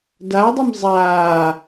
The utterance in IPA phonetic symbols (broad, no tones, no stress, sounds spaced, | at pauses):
d a w dˤ ɪ m zˤ aː